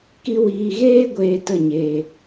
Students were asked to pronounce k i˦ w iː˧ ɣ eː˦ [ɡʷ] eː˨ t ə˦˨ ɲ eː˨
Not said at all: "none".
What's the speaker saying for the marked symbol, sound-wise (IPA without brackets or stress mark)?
ɡʷ